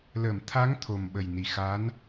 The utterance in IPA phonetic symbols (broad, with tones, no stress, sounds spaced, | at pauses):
l ə˨˩˨ m t̪ʰ a˧˥ ŋ t̪ʰ o˨˩ m ɓ ə˨˩ j n i˨˩ x a˧˥ n